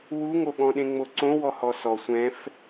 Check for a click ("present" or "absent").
present